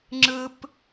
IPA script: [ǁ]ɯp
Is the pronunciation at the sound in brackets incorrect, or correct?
incorrect